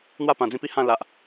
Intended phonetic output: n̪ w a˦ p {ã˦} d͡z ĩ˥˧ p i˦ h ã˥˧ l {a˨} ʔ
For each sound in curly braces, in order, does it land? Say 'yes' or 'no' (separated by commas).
no, yes